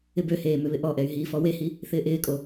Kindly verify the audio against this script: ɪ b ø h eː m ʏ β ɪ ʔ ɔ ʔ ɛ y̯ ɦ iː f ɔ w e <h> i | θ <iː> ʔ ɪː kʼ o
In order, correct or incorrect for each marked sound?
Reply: correct, incorrect

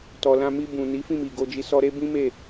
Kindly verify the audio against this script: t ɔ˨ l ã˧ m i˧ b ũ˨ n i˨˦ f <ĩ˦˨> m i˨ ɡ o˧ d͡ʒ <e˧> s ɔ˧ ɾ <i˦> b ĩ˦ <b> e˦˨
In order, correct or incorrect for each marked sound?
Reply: correct, incorrect, incorrect, incorrect

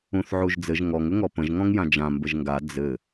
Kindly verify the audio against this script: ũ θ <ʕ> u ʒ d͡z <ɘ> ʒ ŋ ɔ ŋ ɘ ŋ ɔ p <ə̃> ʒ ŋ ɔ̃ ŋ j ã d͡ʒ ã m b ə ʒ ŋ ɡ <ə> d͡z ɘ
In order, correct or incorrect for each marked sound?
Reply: correct, correct, correct, incorrect

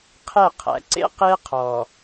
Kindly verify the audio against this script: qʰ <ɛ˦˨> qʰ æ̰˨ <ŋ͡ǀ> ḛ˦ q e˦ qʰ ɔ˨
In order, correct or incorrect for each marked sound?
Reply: correct, incorrect

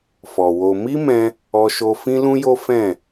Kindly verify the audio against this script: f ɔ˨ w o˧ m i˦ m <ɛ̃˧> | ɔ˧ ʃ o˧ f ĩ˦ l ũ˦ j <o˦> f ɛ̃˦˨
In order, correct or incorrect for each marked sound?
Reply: correct, correct

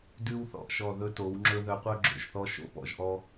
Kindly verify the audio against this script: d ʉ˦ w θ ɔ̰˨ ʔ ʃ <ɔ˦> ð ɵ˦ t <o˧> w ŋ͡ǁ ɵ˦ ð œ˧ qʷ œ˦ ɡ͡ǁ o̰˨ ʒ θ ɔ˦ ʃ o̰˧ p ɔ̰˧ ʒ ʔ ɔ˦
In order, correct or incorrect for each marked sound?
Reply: incorrect, incorrect

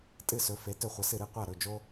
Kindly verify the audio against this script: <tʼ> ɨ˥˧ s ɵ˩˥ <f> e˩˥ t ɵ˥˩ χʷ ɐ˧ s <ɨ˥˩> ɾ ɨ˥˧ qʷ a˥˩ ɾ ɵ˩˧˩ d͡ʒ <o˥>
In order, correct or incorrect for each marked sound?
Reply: correct, correct, correct, correct

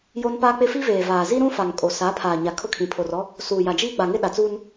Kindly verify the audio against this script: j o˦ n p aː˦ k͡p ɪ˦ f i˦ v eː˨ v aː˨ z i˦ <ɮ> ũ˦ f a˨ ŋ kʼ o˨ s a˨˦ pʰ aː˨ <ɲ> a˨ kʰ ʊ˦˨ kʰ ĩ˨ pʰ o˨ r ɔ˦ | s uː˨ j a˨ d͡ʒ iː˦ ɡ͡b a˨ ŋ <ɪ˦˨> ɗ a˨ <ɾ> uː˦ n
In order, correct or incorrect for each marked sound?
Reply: incorrect, correct, incorrect, incorrect

